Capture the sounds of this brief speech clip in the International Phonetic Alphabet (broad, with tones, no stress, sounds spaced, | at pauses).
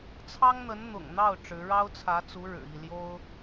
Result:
t͡sʰ ɑ˥ ŋ n̪ ə˧˥ n n̪ ʊ̰˨˩ ŋ n̪ ɑ˥˩ ʊ̯ ʈ͡ʂ ɻ̩˧˥ ɻ ɑ˥ ʊ̯ t͡sʰ ä˧˥ t͡s u˧˥ ɻ ɻ̩˨˩ i˥˩ l j o˥ ʊ̯